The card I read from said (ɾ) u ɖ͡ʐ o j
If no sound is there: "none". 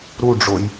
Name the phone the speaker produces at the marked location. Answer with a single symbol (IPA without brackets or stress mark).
ɾ